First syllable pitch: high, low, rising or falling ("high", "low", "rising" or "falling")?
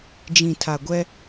low